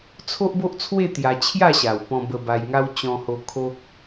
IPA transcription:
t͡sʰo˦ʔbo˦ʔt͡sʰwe˥˧ t̪ja˧ t͡ɕʰja˥˧ɕa˨˩wpɔ̃˧ bə˧ba˧jŋa˦w t͡ɕɔ̃˧ho˧ kʰo˦k̚

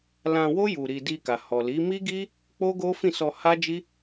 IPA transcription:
lã˧wo˦ ju˧ɾi˧ di˧ka˨ hɔ˨li˨˦ mi˦ɡi˦ | k͡po˦ɡo˦ fĩ˦˨sɔ˧ ha˦d͡ʒi˦

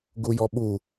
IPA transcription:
ɡujɔɓu

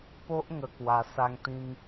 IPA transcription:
po˦ʔ ŋə˧kwa˧ sa˦ŋt̪ĩ˦ŋ

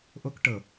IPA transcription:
ʔok ʈɤ

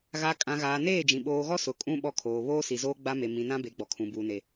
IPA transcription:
ɣa˨ kʼã˨ɣaː˨neː˦˨d͡ʒĩ˨ ɓoː˨ɣɔ˦ sʊ˨kʼũ˦ ɓɔ˦kʰoː˨ βoː˦si˨zoː˦ ɡ͡ba˦me˨ mĩ˨ nã˦be˨˦ɡ͡bɔ˨kʰũ˨ buː˨ne˨

